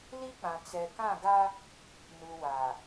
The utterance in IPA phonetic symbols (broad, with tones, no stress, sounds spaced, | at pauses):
l i˦ k͡p ã˨ t͡s ɛ˨ k ã˦˨ ɡ a˦ | n u˨ w a˨